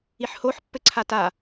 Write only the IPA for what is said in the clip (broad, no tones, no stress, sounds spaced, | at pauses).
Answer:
i ħ h o ħ pː ɘ ǀʰ a t a